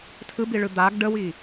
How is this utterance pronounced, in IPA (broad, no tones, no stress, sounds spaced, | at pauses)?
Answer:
tʰ ɯ b i ɭ ɯ d̪ a ɡ ɖ ə w i